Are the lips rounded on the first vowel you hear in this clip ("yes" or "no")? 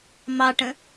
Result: no